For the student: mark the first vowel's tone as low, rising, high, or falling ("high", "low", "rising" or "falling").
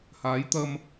rising